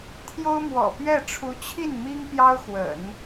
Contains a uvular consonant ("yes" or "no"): no